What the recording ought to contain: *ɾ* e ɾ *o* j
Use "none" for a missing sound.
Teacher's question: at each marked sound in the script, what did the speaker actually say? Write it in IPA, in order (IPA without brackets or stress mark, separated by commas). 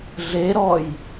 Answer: ɮ, ɔ